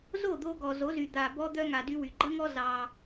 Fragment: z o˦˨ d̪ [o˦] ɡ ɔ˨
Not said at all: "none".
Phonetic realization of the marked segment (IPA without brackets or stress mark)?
o˧